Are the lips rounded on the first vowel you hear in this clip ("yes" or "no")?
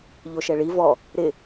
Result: yes